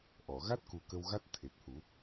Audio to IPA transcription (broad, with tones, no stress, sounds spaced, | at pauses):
ʔ ɔ˨˩˨ ɣ a˦˥ t̚ k u˨˩ k ə˧ w ɣ a˦˥ t̚ t̪ʰ e˨˩ t̚ h u˨˩˦